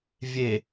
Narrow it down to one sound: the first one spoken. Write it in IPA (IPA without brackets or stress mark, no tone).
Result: vʲ